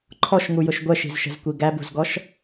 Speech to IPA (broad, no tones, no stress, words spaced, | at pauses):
ǃʰɔʃŋujʊʃ ɡʷɛʃi̤zʃə̤zkʷi ɡæbṳzɡɔʃ